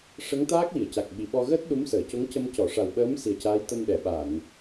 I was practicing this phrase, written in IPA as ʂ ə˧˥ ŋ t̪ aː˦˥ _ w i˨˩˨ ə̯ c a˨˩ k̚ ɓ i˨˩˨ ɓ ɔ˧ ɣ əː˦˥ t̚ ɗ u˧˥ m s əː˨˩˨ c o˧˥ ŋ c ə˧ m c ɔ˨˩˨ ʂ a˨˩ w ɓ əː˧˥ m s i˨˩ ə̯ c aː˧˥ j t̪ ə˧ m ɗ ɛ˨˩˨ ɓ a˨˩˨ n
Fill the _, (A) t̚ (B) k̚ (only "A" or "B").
B